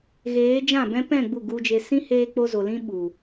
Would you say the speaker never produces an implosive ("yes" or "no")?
no